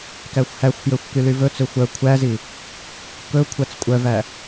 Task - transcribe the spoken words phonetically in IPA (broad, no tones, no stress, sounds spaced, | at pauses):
k æ xʷ h æ xʷ f j ø xʷ k y l y v ɵ t͡s ø xʷ œ kʷʰ æ z i | k ɵ kʷʰ æ t͡s kʷʼ œ v æ